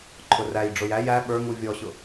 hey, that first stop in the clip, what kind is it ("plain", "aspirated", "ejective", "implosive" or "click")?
click